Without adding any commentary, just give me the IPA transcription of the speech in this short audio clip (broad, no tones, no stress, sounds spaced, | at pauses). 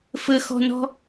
f ə x ɔ̤ n ɔ̤